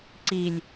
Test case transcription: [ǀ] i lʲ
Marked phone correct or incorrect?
correct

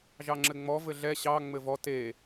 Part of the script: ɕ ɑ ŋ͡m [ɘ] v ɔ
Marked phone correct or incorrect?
correct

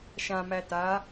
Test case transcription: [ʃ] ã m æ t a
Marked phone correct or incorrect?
correct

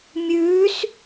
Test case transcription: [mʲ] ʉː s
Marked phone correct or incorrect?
correct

